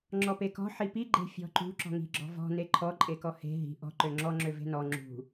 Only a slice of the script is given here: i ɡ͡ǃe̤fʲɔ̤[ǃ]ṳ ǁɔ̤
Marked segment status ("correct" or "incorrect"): correct